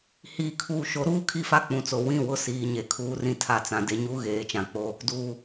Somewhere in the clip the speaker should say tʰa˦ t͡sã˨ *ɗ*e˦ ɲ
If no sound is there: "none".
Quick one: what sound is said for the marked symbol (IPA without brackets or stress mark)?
d